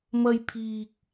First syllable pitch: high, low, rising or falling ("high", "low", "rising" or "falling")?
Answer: high